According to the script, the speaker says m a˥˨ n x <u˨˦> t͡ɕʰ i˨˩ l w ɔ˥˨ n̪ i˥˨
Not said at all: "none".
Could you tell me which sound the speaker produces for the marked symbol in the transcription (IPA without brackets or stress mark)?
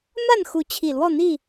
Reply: u˨˦